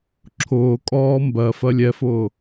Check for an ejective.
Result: present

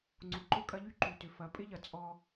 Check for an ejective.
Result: present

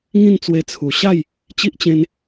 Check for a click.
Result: absent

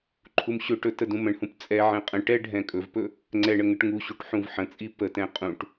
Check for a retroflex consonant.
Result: present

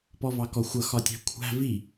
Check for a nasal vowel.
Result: absent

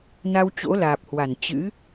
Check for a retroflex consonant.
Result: absent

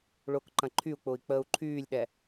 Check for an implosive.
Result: present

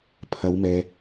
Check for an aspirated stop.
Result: present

